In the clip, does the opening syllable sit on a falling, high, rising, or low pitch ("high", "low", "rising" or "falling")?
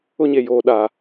high